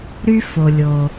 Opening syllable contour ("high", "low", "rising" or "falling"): high